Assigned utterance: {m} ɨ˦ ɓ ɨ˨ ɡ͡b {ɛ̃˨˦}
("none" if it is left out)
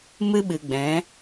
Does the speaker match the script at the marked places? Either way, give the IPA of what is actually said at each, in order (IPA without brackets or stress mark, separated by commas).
m, ɛ̃˨˦